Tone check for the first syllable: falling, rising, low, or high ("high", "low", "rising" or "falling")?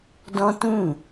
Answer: high